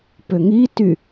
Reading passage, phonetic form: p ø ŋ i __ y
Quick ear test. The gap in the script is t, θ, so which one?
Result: t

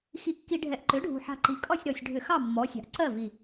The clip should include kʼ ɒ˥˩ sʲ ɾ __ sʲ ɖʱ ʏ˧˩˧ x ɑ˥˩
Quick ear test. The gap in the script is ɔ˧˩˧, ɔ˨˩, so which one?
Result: ɔ˨˩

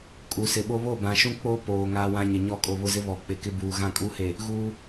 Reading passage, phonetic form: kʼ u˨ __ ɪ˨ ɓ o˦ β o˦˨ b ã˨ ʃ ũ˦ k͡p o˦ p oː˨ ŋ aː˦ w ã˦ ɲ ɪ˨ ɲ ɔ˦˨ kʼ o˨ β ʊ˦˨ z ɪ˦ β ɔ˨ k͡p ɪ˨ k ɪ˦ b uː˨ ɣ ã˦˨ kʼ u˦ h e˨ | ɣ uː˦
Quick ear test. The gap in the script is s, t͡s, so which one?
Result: s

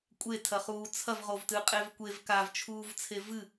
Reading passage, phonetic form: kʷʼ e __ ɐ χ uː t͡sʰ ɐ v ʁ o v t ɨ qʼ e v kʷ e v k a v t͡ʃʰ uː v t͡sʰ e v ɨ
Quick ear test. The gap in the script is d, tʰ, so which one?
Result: tʰ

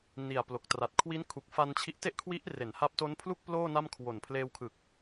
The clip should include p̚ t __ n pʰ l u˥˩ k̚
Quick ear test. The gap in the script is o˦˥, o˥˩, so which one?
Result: o˦˥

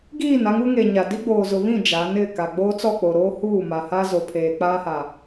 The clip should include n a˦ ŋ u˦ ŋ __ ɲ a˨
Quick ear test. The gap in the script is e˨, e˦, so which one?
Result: e˨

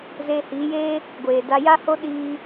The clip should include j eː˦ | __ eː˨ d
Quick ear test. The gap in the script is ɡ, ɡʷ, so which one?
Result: ɡʷ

